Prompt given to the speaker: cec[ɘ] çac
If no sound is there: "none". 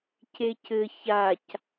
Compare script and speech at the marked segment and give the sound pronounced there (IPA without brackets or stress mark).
ɘ